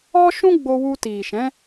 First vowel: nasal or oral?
oral